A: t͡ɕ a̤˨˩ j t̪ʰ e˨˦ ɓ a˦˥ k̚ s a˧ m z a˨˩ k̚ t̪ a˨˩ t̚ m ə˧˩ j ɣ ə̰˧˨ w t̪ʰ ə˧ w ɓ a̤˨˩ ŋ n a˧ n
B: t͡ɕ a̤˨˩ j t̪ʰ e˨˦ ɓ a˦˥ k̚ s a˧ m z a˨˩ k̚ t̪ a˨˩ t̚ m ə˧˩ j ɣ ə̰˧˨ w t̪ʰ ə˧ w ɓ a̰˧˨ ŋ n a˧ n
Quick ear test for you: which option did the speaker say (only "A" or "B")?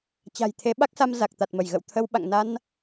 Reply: B